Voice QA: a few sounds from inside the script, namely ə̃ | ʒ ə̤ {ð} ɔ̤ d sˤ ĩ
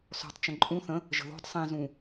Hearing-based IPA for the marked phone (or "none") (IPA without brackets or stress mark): ð